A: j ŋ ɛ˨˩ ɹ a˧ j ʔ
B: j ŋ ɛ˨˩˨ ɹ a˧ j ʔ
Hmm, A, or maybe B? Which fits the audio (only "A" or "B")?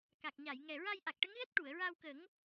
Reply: A